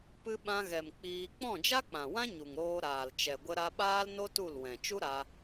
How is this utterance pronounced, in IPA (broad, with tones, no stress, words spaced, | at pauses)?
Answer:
pɨ˧ ɓã˧ɣɛ˨m k͡piː˧ k͡pɔ̃˦˨d͡ʒa˦k͡pã˨wã˦ ɲu˨ŋɾoː˧ ɾaː˨lt͡ʃɛ˨ ɡʷə˧ɾa˧ɓaː˦lno˦ tu˦˨lwɛ̃˨ t͡ʃu˦ɾa˧